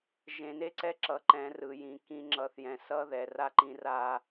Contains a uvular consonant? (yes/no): no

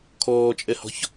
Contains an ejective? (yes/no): yes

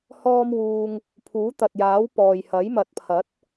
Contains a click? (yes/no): no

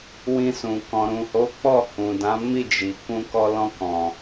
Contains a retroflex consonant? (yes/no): no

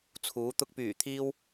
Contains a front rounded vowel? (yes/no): yes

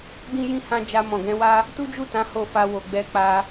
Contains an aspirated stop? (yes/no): no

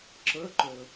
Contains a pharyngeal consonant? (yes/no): no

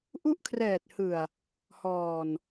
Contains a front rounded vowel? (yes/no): no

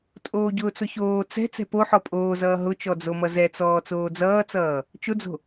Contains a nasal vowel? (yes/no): no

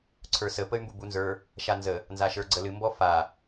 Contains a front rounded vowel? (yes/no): yes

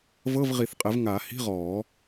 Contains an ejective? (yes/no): yes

